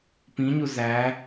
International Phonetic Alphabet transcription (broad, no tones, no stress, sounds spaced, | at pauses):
p ĩ ɲ u z æ